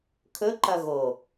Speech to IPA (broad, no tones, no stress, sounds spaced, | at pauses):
kʰ ɵ ǃ ɐ ɣ o